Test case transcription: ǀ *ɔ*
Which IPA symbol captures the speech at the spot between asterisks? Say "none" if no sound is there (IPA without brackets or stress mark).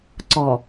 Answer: ɔ